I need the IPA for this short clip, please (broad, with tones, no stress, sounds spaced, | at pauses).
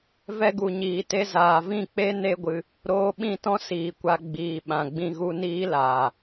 v ɛ˧ ɡ u˨ ɲ iː˨ t e˧ z aː˨ v ĩ˦˨ k͡p e˦ n e˦ ɡʷ ɨ˧ | ɾ oː˧ ɓ ĩ˦˨ t ɔ̃˦ s iː˨ kʷ a˧ ɡ͡b iː˨ ɓ ã˨ ɡ͡b ĩ˧ ɣ u˦ n iː˦ l aː˨